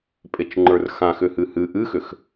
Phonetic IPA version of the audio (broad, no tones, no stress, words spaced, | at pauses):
pʼet͡ʃŋ͡ǃə˞rxã xʏhɨhɨ ʔɨxʏx